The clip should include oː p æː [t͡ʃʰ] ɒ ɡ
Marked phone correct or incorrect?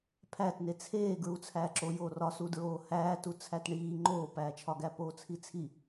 correct